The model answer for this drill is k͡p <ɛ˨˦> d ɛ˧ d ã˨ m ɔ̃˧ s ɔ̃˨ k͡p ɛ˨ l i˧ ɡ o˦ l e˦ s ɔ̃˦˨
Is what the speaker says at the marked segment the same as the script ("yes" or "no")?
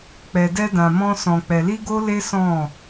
no